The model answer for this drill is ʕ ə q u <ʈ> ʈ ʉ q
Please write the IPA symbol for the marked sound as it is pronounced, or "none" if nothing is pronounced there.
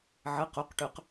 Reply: q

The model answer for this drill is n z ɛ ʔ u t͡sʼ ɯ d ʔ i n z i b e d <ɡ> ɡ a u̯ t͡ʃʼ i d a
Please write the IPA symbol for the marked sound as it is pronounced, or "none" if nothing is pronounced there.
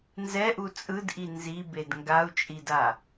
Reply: ŋ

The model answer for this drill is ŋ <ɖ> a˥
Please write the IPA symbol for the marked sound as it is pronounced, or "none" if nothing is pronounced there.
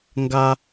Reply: ɡ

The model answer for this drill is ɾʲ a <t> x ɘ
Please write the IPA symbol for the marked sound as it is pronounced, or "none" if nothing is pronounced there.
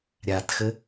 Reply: t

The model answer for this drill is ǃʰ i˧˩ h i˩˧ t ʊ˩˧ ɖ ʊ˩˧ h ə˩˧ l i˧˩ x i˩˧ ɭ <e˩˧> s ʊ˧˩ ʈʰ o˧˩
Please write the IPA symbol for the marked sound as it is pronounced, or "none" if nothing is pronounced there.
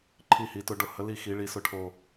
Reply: i˩˧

